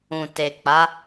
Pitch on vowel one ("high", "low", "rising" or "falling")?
low